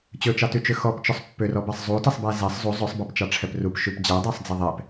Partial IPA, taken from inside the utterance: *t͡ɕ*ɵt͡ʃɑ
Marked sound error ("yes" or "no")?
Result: no